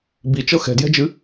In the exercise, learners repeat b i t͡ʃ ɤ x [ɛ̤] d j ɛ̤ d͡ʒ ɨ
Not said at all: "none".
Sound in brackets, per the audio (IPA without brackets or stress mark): ɛ̤